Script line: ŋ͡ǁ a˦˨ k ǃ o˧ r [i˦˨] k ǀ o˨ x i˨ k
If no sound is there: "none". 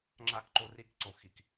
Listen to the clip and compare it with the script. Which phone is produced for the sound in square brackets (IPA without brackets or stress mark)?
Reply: i˧